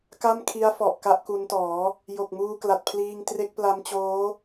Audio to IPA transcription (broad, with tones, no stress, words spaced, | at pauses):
ka˥˩mkʰi˦˥a̯ fɔ˨˩ʔka˥˩ʔku˦˥ntɔː˩˦ | jo˨˩k̚muː˧kla˨˩t̚pʰliː˧ŋ tre˦˥k̚pla˦˥mt͡ɕoː˦˥